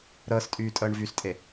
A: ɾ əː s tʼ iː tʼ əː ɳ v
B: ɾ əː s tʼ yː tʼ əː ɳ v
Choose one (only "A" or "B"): B